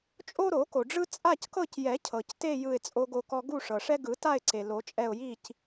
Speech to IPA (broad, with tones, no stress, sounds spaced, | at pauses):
t͡ʃʼ o˦ ɾ o˨˩˦ k o˩ ɖ͡ʐ ɯ˦ t͡sʼ a˦˨ c k ɤ˦˨ c j ɛ˨˩˦ cʰ ɤ˩ c t e˦˨ j ɯ˦˨ ɪ̯ t͡sʼ o˦ ɡ o˦˨ k ɔ˦ ɡ u˦˨ ʂ ɤ˩ ʂ ɛ˦ ɡ ɯ˨˩˦ t a˦˨ ɪ̯ ǀ e˩ l o˨˩˦ t͡ʃʼ ɛ˦˨ ʊ̯ j i˦˨ c